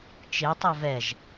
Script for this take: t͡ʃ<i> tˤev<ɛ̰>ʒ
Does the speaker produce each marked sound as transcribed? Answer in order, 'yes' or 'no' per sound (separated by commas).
no, no